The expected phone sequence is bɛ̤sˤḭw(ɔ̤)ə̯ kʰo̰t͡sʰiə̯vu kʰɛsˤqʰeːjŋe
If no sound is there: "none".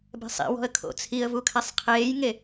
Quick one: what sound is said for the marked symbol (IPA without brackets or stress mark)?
ɔ̤